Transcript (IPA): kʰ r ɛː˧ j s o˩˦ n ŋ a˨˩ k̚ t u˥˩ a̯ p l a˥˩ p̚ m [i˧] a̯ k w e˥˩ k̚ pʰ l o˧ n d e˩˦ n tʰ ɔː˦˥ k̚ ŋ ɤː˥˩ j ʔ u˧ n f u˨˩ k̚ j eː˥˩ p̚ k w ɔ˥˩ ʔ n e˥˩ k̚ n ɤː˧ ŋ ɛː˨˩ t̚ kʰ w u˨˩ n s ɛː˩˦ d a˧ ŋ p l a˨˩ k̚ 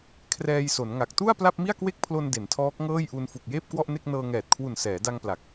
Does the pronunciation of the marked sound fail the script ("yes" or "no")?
yes